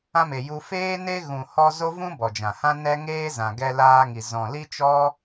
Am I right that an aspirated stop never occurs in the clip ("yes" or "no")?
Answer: yes